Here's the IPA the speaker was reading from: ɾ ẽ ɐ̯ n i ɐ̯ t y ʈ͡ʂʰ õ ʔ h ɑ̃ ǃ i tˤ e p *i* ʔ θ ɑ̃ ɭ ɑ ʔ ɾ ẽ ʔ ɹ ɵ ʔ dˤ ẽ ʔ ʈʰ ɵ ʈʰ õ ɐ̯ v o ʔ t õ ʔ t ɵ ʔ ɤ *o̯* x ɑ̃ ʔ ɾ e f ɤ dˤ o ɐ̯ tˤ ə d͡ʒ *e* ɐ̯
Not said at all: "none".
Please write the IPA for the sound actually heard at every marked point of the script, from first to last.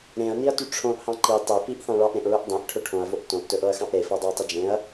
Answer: i, ɐ̯, ẽ

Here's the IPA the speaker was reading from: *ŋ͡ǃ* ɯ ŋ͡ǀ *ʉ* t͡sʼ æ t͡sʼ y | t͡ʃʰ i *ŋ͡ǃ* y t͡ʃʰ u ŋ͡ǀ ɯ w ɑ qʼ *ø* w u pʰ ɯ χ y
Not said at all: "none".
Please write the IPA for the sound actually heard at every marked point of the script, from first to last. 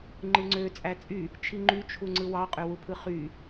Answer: ŋ͡ǃ, ø, ŋ͡ǃ, ø

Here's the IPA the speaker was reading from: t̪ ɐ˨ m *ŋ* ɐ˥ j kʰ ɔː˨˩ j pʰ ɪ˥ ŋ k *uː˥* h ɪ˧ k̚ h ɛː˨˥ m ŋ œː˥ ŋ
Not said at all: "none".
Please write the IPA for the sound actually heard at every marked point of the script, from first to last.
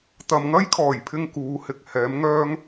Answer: ŋ, uː˨˥

